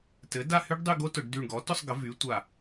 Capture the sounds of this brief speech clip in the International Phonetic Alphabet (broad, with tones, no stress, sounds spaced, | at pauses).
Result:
t ɘ˩˥ d a˥˧ h y˦˥ ɖ dˤ y˥˧ ɡ o˦˥ t ʊ˧˩˧ ɖ d y˧˩ ɳ ɡ ɔ˩˥ t ʊ˥˧ sˤ ɡ ə˩˥ v y˩˥ tʷ a˧˩